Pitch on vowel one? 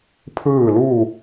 falling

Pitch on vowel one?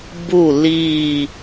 falling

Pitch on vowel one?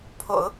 low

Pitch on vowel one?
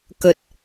low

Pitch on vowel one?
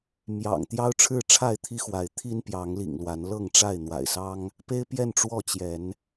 low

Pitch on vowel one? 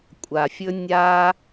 low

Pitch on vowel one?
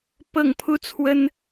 falling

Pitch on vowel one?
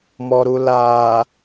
low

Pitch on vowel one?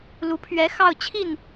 rising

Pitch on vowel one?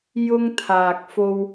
high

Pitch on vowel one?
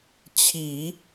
low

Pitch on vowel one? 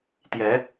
rising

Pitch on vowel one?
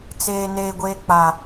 high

